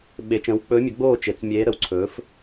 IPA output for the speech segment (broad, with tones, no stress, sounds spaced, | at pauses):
ɓ e˩˧ t͡ʃ ə̃ː˩˥ w k͡p ɵː˧˥ mʲ ɵ˩˥ ɡ͡b oː˥˨ t͡ʃ e˩˧ t͡s mʲ eː˧˥ ɾ ə˩˧ w ǀʰ ɵː˩˥ f